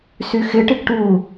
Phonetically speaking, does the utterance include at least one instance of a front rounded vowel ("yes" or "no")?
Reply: yes